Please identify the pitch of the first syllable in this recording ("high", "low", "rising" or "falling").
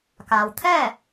low